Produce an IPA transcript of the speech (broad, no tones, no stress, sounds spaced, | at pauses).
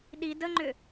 ɗ i d ə ŋ͡ǃ ʏ